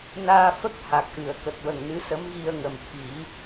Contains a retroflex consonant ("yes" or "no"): no